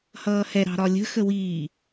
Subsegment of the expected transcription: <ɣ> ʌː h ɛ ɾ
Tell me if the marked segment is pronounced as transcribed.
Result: no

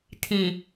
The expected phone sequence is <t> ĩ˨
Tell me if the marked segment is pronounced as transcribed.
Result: no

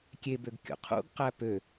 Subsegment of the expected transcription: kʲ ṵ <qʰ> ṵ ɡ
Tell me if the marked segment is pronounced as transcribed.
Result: yes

